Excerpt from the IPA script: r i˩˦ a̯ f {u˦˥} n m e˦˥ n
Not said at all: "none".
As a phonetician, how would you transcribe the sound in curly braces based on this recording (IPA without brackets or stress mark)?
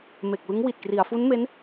u˦˥